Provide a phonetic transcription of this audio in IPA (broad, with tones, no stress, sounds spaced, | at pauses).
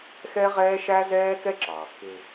x ɛ˥ ʁ ɛː˥ ʃ æ˥ z ɛː˥ k ɛ˥ ǁ ɑː˩ kː ɪ˧